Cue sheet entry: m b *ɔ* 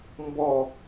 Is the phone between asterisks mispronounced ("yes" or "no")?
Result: no